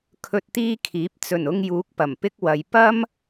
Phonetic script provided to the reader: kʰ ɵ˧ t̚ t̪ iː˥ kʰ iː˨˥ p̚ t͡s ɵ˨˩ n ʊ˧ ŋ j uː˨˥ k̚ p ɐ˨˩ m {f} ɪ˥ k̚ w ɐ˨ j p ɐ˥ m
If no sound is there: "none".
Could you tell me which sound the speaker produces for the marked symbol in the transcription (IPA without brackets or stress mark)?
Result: p